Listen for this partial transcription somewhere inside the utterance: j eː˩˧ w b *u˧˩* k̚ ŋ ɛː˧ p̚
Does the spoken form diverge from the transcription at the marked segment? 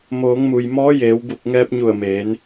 no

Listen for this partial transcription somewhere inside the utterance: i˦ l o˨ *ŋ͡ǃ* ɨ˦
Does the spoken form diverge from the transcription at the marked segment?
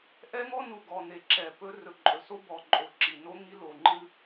no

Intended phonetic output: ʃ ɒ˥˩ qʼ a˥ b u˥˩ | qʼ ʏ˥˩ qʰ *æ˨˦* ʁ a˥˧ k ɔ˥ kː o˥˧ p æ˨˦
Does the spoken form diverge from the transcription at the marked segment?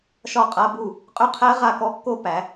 yes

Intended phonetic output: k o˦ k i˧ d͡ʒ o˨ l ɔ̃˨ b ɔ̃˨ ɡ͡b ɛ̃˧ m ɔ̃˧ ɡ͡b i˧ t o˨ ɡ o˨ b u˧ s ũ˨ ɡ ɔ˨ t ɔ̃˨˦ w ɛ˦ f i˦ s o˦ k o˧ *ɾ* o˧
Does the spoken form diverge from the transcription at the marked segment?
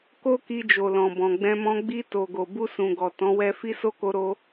no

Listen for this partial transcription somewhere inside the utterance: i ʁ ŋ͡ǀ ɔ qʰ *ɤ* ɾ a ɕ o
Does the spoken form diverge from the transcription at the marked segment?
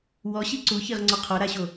yes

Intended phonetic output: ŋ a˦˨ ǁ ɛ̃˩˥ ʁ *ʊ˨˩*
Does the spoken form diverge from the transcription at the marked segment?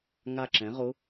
yes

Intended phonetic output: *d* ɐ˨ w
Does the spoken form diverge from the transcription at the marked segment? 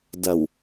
no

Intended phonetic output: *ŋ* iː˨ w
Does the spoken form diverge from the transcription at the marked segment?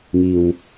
no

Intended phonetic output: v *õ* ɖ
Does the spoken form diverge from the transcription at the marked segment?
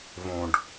no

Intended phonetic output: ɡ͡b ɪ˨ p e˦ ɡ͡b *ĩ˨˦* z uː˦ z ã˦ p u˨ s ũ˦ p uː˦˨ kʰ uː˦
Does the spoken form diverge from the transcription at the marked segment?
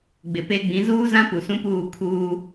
no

